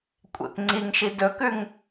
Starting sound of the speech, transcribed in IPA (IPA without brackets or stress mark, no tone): kʷʼ